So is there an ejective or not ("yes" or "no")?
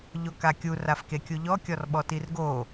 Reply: no